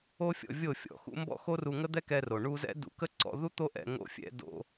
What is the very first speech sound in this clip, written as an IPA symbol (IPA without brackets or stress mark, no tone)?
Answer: o